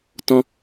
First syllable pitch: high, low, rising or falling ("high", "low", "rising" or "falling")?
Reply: high